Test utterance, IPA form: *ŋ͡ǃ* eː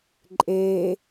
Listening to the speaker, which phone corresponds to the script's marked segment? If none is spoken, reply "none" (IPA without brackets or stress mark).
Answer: ǃʼ